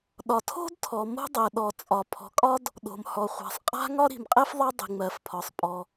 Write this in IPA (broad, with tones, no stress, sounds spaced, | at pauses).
ɗ ɒ˩ tʰ o̤˥ d tʰ ɔ˩ m o̤˥ dˤ ɛ˩ ɗ ɔ˩ t͡sʼ ɒ˩ pʰ ɔ̤˩ kʼ ɒ˥ d | ɗ o̤˩ m h ɔ˩ χʷ a̤˩ sˤ qʼ a̤˥ ŋ ɒ˥ ɾ i̤˩ m qʼ ɛ˥ f ðˤ a˥ dˤ i̤˩ ŋ͡m ɜ˩ f pʰ ɒ˩ sˤ pʼ ɔ˩